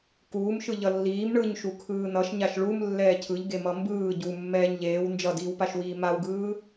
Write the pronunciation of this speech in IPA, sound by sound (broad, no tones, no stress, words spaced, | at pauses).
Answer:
kuːmʃɯ ʎʌlːiːm ɳɯɲ ʃukʰɯːnʌʃɲaʃ ɭum lːɛːcʰɯʎɡemʌ mbɯː ɟumːɛːɲ ʎeːw nd͡ʒʌdiːwpaʃwiː mawɡɯː